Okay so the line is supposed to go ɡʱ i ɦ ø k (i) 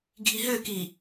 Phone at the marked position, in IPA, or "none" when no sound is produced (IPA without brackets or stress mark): i